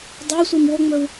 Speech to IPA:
dˤɛ sʷimwoŋ͡mɵw

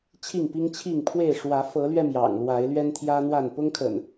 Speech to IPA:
t͡ɕʰi˥˨ŋpi˦ŋt͡ɕʰi˥˨ŋ pʰwe˥˨ɪ̯ ʂwä˨˦fɤ˨˦lɥɛ˧ mjɑ̰˨˩ŋlwa˨˦ɪ̯lɥɛ˦n t̪ʰjä˦n̪wa˥˨n pʊ˦ŋkʰə̰˨˩n

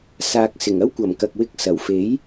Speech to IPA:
saː˨k̚sɪ˨˩ŋ ɐ˥wkʷɐ˨˩m kɐ˨k̚wɪ˧k̚ sɐ˨˩wfe˨˥j

